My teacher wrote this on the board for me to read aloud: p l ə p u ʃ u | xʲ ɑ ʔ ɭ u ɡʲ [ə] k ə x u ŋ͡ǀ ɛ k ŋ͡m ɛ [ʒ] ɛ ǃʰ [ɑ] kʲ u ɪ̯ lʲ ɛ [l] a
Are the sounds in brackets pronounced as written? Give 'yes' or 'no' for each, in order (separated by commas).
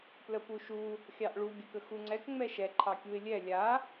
yes, no, yes, no